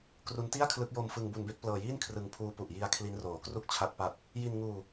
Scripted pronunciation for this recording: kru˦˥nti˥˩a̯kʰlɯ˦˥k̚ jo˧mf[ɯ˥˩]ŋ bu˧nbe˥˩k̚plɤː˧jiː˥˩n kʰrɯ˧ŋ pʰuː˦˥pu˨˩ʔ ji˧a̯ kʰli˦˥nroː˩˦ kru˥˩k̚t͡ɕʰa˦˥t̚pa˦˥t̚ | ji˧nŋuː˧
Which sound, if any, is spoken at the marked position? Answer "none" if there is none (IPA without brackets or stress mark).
ɯ˧